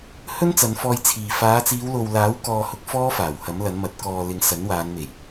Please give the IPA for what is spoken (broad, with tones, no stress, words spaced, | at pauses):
hɵ˥nt͡sɐ˨˧nfɔː˧jt͡sʰiː˨ faː˨˧t͡siː˨˧wlo˨wlaː˨˥w kɔː˧hʊ˧k̚ fɔː˥faː˨˩whɐ˨˥m lɐ˨˥nmɐ˨˥t̚ kɔː˨lɪ˨ŋ sɐ˨˥nwaː˨˧nme˨˩j